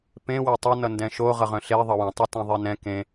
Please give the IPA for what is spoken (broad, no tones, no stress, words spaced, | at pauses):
pẽwɛ tˤʌ nʌndɛ̃ʃo ʁʌʁœ̃ɬe ðˤʌwẽtˤʌtɛ̃ ðˤenɛ̃ kẽ